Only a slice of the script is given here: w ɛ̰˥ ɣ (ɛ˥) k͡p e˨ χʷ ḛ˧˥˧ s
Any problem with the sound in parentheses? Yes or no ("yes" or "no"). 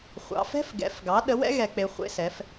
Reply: yes